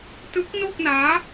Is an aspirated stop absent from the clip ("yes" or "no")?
yes